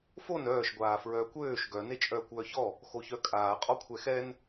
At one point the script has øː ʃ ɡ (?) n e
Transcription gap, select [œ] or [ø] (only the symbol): œ